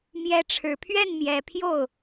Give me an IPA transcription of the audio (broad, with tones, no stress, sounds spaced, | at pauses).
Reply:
m j ɛ˧˥ ʈ͡ʂʰ ɻ̩˨˩ pʰ ɥ ɛ˥˩ n m j ɛ˨˩ pʰ j o˥˩ ʊ̯